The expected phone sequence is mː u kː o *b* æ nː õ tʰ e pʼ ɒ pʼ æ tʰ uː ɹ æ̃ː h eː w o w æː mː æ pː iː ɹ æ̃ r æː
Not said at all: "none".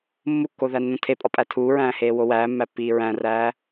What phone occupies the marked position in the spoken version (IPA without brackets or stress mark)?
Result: ð